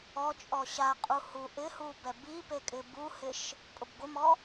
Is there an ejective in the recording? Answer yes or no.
yes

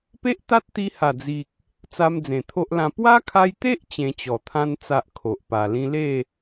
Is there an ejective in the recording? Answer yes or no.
no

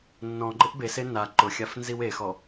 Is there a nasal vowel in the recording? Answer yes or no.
yes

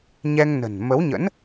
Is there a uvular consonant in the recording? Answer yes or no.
no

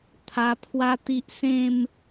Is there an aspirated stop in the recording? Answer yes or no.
yes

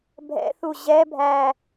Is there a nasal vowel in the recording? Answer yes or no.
no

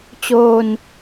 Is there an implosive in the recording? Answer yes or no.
no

